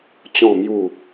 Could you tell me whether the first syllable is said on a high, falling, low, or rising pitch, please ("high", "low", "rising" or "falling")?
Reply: falling